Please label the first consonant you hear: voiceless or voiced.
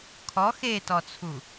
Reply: voiceless